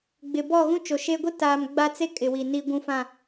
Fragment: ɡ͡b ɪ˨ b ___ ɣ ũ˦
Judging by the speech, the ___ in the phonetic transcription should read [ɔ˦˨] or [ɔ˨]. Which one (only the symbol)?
ɔ˦˨